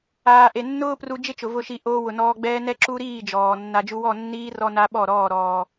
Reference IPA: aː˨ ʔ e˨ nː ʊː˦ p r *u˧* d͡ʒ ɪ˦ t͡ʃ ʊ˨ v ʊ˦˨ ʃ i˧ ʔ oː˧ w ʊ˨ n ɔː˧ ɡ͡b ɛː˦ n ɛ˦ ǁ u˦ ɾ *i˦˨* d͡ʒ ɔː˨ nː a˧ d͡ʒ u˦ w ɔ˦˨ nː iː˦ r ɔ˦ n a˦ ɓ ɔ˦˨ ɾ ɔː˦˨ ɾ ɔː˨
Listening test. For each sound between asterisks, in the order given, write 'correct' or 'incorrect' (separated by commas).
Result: correct, incorrect